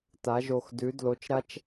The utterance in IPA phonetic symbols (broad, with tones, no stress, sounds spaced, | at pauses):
t a˨˦ ʒ o˧˩ x d ʉ˨˦ d l o˨˦ t͡ʃ ɾ a˦ t͡ʃ